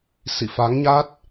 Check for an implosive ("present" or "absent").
absent